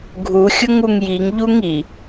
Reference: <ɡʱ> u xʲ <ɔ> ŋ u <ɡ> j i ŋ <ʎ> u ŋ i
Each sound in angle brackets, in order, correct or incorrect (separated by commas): correct, incorrect, incorrect, correct